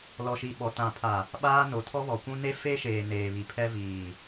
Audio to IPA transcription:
l ɔ˨ ʃ i˨ ɓ ɔ˨ t ã˨ pʰ a˨ | ɓ aː˦ n o˨ tʰ ɔ˦ β ɔ˨ kʷ ũ˦ n e˦ f e˦ ʃ eː˨ n eː˨ β i˨ pʰ ɛ˦ v iː˨

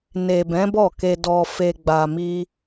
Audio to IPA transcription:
n e˨ b ɛ̃˨˦ b ɔ˦˨ k e˨ d ɔ˨ f e˧ ɡ͡b a˧ m i˦

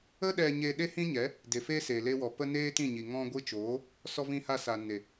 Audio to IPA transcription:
ə˦ ɗ ɛ˧ ɲ e˧ ɗ e˧ h ĩ˧ ɲ ɛ˨˦ | d e˨ f e˧ s e˧ l e˦ w ɔ˧ p ə˧ n eː˦ t ĩ˦˨ ɲ i˨ ŋ ɔ̃˧ ɡʷ ɨ˧ t͡ʃ oː˨˦ | s ɔ˧ v ĩ˧ h a˧ s a˨ n e˨

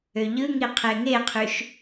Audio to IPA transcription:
ø ʎ ɯ ŋ i qʰ e ŋ e qʰ y ʃ

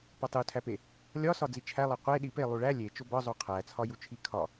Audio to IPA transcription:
p ɒ tˤ u tʰ æ p e | lʲ ɒ s ɒ d͡z i t͡ʃʰ æ lˠ e qʷ e ɗ i p e lˠ u ɭ æ lʲ e t͡ʃ o b ɒ zˤ o qʰ æ t͡sʰ ɒ j u t͡ʃʰ i kʰ ɒ

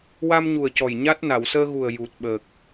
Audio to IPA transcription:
w a˧ m ɲ u˨˩ ə̯ c ɔ˨˩ j ɲ a˦˥ t̚ n a˨˩˨ w s əː˧ ɣ u˨˩ ə̯ j u˨˩ t̚ ɓ əː˨˩ k̚

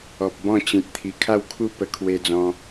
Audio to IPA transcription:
ɔ˨ p̚ b ɔ̃˥˧ t͡ɕ ĩ˨ t̚ t̪ʰ i˨˩ kʰ a˥˧ w kʰ u˥˧ p ə˧ kʰ w e˧ d͡z ɔ̃˧

